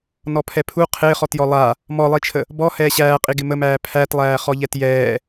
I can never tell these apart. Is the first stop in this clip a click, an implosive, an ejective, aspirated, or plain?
aspirated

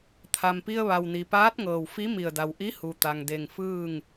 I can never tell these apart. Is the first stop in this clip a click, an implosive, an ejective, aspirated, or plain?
aspirated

